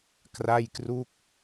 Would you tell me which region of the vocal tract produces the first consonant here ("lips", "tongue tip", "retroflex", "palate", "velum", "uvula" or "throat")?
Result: velum